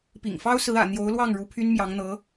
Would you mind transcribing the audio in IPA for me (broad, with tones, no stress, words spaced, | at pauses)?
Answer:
pḭ˨˩ŋfɑ˥ʊ̯sɹ̩˧˥ ä̰˨˩n̪jo˧˥ʊ̯lwɑ˥˩ŋ ɻu˧˥pʰy˥nmjɑ˧˥ŋn̪ɤ˧˥